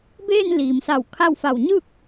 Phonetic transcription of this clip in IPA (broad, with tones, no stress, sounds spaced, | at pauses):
b eː˥˨ n l iː˩ m s a˧˩ w kʰ a˥˨ w f a˧˩ w ɲ ɯː˥˨ k̚